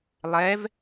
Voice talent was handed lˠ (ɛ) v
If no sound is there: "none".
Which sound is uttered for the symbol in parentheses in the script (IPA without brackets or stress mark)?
ɛ